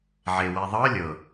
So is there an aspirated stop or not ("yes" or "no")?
no